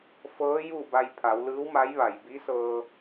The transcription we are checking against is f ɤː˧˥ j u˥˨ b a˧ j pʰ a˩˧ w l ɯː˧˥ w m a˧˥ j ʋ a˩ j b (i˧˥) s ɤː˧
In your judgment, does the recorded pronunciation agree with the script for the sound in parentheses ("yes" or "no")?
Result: yes